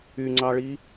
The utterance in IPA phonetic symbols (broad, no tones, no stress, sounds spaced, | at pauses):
y ŋ͡ǀ ɑ ɭ i